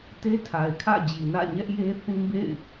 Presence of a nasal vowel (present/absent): present